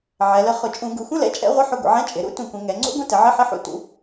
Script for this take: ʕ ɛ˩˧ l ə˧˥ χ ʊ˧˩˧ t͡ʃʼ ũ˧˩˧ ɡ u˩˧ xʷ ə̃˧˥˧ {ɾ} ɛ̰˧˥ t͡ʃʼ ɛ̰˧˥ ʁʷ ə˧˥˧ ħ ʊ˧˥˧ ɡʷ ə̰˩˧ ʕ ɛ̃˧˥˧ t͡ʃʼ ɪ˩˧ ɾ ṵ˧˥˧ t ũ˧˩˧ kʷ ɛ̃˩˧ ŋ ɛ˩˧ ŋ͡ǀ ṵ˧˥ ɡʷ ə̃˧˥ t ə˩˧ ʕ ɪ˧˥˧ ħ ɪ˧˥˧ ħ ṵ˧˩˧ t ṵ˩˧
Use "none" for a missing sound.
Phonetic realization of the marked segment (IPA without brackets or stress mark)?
l